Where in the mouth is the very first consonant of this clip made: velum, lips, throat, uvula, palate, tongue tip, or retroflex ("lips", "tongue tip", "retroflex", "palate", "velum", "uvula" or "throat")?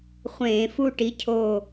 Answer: uvula